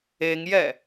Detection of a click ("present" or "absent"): absent